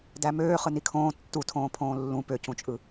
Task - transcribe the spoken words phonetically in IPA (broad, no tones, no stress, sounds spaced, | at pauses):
d æ m øː χ ɯ n i kʰ õː tː u tʰ õː pʰ õː lː ũ p ø c ũ t͡ʃʼ ɯ